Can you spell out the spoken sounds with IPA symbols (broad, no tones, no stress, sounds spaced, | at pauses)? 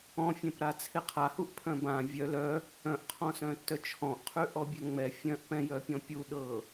ɔ̃ fʲ ɛ̃ p ɾ a t͡sʰ e qʰ a h u ʔ pʰ œ̃ b ã vʲ œ l œ | œ̃ ʔ qʰ ɔ̃ s œ̃ tː œ t͡ʃʰ ɔ̃ ʔ qʰ ʉ ʔ ɔ bʲ ɛ ŋ͡m ɛ fʲ œ̃ ʔ p ɛ̃ j œ pʲ ɔ̃ pʲ u ɗ ɤ